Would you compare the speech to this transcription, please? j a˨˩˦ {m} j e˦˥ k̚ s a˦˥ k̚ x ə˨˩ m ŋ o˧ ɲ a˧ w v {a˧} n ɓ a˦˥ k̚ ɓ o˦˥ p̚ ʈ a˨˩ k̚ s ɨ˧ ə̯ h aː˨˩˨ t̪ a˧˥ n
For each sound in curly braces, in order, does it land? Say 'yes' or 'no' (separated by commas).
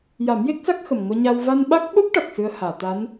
yes, yes